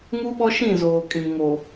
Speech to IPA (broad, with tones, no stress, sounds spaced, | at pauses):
ŋ u˦ ɓ ɔ˦ ʃ ĩ˦˨ z oː˨ kʼ ĩ˨ ŋ o˨